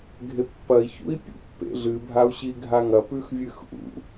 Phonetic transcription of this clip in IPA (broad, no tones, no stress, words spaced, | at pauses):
ɡʱepːɐi̯ çṵi̯pʲṵpːḛɮɨ bʱau̯ɕiɡʱaŋɐ pʉxvʲɨxʔṵ